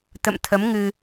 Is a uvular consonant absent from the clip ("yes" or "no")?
yes